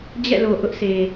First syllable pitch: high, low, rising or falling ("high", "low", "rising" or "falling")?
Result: falling